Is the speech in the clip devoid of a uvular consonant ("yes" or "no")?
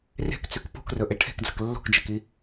yes